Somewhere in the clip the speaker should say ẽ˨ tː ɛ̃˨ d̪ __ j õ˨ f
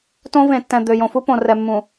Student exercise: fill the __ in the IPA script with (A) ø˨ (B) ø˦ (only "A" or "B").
A